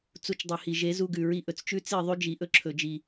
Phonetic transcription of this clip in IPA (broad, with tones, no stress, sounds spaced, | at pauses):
t͡s u˧ t͡ʃ dˤ i˨ h i˨ ʒ e˨˦ z u˧ ɡ ʉ˨ ɹ i˧ ʔ ɵ˨ t͡s t͡ʃ ʉ˦ t͡s i˦˨ ðˤ ʉ˧ d͡ʒ i˨ ʔ ɵ˧ ǁʰ ɵ˨ d͡ʒ i˨